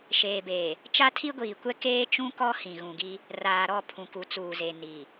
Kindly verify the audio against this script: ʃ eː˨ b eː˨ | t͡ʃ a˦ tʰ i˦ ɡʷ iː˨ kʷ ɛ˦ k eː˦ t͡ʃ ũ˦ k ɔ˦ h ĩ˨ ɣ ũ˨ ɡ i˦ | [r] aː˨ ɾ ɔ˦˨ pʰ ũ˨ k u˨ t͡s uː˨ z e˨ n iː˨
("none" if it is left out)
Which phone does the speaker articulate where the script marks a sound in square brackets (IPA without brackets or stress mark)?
r